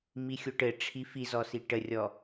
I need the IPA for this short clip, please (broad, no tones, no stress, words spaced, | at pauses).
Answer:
mixʲoʈɘ ʈ͡ʂʰifizɔsi ʈərʲɔ